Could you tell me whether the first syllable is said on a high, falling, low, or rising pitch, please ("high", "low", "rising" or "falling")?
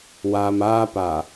low